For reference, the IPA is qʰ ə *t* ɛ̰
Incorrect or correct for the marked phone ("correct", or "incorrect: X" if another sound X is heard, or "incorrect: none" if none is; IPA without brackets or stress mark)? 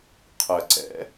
incorrect: ǀ